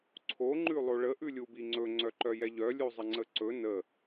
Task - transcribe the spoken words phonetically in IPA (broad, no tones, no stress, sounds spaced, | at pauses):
ǀʰ o ŋ͡ǃ ʉ lˠ o ɭ ə ʔ ʉ lʲ u b i ŋ͡ǀ ɵ ŋ͡ǀ œ ǃ œ j ɛ ʎ œ lʲ u zˤ ə ŋ͡ǀ ə ǀ ɵ n ə